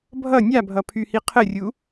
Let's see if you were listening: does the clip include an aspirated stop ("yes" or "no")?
yes